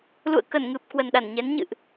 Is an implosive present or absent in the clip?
present